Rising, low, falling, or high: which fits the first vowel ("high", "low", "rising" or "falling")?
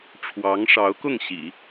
rising